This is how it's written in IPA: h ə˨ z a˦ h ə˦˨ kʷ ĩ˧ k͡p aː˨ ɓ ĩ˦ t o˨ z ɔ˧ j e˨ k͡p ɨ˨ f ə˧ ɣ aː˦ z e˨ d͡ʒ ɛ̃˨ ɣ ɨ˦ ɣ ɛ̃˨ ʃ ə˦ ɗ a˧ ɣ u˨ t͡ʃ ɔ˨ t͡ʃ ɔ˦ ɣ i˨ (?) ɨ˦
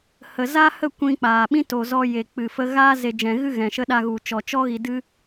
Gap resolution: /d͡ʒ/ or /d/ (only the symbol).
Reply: d